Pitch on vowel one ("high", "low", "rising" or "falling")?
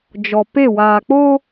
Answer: low